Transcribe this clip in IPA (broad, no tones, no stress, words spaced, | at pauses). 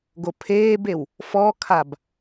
ɡopʰeːbew | fɔkʰab